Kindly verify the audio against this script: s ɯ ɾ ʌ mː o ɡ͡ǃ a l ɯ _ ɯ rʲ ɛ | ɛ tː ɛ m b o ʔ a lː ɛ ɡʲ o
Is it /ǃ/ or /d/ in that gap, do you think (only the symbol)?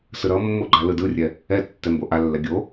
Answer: d